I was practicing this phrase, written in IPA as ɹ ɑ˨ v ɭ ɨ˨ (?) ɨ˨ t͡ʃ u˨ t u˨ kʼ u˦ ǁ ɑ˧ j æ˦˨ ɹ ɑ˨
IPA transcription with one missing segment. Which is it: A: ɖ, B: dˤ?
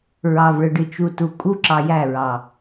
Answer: A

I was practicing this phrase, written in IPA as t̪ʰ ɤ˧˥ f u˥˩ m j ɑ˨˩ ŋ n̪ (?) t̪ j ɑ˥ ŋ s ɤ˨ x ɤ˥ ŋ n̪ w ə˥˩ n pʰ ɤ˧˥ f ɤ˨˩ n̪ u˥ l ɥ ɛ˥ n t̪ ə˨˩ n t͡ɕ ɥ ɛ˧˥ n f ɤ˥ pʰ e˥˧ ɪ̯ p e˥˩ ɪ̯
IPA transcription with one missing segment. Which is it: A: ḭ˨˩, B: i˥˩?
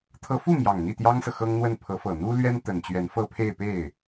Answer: B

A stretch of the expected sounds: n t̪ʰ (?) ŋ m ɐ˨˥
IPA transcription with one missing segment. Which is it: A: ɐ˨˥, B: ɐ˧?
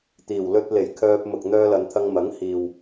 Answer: B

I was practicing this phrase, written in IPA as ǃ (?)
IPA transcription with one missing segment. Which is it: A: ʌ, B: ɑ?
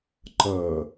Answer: A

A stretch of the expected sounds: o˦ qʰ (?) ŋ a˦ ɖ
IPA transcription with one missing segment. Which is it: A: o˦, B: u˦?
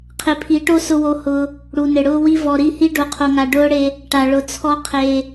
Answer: A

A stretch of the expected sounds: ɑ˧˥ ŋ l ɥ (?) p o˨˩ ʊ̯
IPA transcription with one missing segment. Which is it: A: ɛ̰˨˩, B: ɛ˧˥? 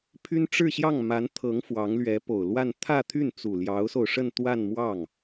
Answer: B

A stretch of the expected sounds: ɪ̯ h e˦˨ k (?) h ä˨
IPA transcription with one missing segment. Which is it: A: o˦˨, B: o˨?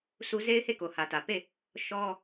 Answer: B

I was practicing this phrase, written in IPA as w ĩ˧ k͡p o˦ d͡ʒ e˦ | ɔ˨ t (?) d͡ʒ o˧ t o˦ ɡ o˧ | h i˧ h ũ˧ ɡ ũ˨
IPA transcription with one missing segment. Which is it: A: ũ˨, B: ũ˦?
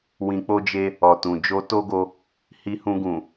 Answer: A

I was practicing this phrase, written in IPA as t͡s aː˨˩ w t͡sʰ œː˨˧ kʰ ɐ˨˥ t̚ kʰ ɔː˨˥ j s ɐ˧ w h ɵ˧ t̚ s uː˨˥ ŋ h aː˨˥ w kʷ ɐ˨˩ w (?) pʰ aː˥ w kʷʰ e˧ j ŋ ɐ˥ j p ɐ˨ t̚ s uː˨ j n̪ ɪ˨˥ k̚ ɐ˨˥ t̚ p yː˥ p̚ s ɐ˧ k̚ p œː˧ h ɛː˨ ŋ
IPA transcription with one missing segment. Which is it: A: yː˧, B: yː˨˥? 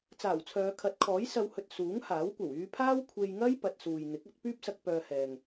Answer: A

